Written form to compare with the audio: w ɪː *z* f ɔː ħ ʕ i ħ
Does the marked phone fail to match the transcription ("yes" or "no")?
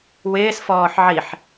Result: yes